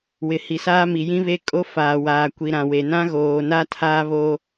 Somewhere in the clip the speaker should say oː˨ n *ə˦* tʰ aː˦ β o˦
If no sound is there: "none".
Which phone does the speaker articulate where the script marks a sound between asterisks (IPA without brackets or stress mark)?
a˦